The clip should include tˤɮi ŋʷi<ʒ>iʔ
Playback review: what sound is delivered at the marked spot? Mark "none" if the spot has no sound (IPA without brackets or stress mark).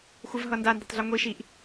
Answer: ʃ